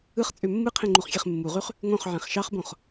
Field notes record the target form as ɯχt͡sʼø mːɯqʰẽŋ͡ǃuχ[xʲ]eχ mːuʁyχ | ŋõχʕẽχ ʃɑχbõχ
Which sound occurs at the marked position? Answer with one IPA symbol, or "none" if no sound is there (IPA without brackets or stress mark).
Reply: xʲ